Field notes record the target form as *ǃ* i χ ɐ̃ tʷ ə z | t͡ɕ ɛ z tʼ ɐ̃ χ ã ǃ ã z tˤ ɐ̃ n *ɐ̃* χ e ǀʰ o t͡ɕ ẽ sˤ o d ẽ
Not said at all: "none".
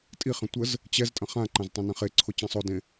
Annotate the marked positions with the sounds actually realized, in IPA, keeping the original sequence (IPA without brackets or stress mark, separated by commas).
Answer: tʼ, ɐ̃